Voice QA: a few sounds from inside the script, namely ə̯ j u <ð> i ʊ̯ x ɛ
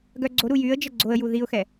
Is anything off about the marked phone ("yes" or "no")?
no